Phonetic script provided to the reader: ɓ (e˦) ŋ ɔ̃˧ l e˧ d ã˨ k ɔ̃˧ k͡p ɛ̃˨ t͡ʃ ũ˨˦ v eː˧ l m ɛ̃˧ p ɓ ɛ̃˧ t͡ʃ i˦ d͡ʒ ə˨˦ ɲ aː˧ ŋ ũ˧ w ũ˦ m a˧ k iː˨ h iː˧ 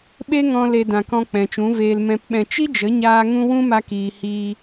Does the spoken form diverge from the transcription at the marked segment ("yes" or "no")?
no